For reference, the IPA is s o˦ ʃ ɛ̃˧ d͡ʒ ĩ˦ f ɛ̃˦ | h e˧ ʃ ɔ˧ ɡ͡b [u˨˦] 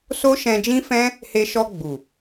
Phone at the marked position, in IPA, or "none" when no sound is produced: u˨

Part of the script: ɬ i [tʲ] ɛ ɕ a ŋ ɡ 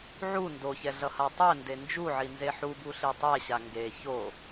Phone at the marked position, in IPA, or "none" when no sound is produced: tˤ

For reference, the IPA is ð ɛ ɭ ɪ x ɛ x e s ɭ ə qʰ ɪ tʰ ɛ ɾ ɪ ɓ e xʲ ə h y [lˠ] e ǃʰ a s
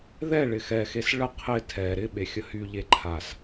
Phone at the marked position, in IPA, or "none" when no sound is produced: ʎ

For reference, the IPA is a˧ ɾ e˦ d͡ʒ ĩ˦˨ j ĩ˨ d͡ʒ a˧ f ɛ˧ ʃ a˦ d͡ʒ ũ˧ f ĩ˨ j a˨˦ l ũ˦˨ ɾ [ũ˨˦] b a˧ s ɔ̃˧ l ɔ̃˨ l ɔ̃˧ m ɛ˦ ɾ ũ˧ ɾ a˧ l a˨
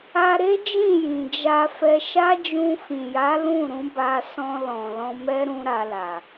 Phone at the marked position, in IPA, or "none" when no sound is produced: ũ˨˦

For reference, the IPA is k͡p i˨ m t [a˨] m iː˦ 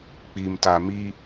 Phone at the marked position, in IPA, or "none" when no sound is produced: a˨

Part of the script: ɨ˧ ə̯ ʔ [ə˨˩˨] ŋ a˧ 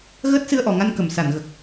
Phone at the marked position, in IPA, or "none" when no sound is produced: ɔ˨˩˨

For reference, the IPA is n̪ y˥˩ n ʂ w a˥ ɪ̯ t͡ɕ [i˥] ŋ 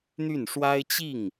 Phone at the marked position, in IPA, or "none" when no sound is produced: i˥˩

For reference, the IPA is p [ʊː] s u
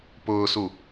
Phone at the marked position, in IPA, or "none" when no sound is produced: ʊː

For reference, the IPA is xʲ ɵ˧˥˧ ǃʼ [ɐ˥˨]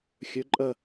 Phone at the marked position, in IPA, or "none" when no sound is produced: ɐ˥˨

